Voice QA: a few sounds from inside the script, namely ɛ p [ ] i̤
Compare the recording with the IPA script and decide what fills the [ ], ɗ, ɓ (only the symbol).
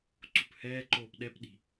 ɗ